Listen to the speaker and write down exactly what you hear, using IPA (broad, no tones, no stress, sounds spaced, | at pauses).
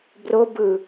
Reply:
b r o b ɯ